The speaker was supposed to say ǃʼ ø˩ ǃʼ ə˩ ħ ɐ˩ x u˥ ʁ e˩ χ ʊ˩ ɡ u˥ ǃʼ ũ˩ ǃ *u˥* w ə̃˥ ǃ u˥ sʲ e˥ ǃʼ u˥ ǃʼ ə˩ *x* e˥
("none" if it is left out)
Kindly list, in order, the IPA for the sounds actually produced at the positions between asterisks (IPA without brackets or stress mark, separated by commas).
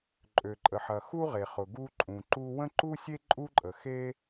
u˥, x